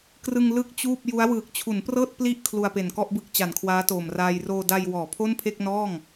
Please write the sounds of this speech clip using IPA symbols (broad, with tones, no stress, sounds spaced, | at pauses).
k r ɯ˧ ŋ l ɯ˥˩ k̚ t͡ɕ uː˥˩ p̚ j u˦˥ a̯ w ɯː˨˩ k̚ t͡ɕʰ u˩˦ n p r ɤː˥˩ t̚ p l i˥˩ ʔ kʰ l u˧ a̯ p e˨˩ n k ɔ˥˩ ʔ b ɯ˦˥ k̚ t͡ɕ a˨˩ n kʰ w aː˦˥ t oː˨˩ m r aː˧ j r oː˧ d a˧ j w ɔː˩˦ pʰ o˥˩ n pʰ e˥˩ k̚ n ɔː˥˩ ŋ